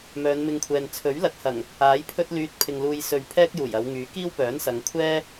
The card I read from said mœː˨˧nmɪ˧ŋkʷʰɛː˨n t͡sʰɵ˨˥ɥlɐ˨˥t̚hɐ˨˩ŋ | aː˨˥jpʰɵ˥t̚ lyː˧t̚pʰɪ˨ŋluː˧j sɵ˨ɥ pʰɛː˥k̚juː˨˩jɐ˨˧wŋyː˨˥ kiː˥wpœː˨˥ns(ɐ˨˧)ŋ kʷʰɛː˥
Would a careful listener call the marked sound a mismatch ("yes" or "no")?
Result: no